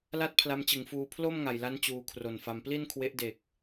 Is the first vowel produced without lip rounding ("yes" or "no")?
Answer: yes